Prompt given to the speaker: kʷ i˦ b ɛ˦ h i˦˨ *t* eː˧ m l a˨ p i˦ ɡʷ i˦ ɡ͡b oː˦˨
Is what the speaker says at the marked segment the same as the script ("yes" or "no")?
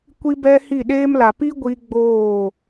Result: no